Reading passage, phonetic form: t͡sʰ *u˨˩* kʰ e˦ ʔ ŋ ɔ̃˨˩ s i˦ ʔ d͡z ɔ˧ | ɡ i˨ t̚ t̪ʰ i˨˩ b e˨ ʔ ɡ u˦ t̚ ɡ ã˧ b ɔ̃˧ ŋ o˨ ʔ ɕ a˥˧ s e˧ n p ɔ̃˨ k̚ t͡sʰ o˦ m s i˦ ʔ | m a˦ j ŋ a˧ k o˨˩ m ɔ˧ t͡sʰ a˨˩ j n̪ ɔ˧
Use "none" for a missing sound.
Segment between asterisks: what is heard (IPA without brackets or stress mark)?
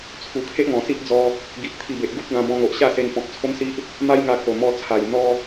u˨˩